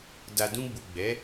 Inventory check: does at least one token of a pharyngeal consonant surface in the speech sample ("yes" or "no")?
no